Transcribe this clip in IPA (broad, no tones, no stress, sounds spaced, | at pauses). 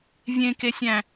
vʲ ẽ k e sʲ æ̃